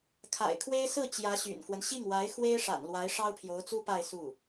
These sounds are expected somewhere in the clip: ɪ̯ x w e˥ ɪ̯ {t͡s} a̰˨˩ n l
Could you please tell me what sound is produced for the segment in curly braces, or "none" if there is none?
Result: ʂ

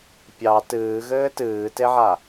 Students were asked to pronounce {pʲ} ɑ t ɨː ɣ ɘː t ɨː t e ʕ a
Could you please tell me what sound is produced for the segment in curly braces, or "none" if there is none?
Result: pʲ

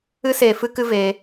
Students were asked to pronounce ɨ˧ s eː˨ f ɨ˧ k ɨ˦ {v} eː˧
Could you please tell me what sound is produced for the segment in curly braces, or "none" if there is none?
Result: v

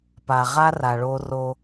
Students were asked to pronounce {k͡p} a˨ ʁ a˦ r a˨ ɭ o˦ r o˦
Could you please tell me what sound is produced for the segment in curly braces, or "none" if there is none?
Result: p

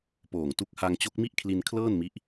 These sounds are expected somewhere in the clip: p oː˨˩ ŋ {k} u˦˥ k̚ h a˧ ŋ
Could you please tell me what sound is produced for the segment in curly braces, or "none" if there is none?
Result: t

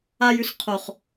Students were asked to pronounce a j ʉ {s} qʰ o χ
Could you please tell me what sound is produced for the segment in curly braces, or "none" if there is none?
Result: s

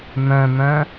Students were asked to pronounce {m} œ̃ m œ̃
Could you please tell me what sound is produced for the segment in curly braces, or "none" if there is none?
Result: m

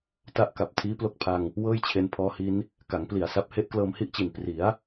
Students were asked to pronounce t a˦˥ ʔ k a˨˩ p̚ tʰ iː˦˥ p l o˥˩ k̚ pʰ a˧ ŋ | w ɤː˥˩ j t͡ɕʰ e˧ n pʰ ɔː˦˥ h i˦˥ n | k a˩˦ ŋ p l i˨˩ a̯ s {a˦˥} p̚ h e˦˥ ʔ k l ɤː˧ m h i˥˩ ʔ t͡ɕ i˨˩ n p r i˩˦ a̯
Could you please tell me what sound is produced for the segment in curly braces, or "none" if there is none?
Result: a˦˥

